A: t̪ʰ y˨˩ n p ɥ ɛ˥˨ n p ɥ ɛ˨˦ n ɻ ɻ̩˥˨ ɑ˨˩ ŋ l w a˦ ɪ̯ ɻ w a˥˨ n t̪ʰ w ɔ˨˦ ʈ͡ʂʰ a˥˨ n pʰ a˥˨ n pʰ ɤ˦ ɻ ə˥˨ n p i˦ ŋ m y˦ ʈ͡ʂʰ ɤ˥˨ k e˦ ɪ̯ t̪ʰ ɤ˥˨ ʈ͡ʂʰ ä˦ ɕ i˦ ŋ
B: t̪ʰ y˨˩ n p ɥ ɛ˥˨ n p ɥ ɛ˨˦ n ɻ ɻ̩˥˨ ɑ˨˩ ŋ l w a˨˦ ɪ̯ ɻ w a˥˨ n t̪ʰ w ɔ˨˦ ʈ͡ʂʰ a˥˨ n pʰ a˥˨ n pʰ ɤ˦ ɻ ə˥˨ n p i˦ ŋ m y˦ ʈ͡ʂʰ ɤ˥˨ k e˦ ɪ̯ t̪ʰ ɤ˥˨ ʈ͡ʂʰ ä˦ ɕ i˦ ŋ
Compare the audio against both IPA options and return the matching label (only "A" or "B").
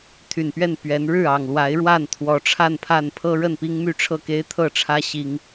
B